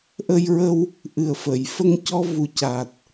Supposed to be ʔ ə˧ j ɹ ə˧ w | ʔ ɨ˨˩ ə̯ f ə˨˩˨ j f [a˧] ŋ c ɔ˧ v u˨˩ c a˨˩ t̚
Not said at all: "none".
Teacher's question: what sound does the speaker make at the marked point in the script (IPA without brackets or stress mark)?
ə˧